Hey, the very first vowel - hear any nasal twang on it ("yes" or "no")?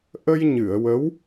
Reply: no